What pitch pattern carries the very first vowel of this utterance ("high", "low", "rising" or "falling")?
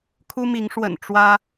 high